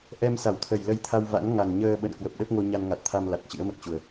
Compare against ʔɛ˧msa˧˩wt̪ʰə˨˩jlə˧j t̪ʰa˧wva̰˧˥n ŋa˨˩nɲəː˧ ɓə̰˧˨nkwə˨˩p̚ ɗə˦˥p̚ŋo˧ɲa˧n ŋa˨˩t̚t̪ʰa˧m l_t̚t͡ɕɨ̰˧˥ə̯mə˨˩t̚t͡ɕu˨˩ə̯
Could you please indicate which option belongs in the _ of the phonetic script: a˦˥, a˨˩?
a˨˩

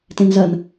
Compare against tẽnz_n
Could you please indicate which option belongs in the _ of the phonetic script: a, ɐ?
ɐ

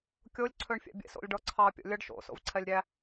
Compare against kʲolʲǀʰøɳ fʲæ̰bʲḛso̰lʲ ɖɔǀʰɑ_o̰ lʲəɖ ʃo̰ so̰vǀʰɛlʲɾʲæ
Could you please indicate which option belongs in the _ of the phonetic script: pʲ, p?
pʲ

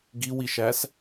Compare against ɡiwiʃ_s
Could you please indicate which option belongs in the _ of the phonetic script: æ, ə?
æ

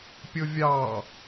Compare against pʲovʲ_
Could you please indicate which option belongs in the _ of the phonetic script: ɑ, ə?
ɑ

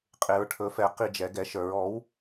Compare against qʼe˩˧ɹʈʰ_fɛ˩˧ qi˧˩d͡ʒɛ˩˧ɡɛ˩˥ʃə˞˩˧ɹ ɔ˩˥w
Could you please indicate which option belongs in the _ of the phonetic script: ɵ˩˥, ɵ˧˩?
ɵ˩˥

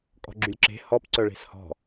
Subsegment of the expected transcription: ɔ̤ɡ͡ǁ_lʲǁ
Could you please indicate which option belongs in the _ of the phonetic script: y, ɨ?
y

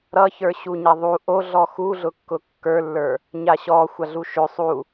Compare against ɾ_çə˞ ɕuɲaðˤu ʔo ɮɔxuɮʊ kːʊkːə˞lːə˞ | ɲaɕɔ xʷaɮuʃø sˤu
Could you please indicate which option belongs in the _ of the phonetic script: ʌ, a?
ʌ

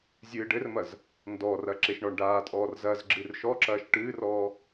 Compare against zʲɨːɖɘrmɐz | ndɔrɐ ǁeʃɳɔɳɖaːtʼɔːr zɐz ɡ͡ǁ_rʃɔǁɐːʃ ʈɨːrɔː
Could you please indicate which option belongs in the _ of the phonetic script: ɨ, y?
ɨ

